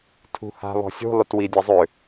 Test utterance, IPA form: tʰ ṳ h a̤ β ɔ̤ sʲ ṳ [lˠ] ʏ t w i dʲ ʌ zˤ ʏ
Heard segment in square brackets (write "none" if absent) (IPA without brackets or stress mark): lˠ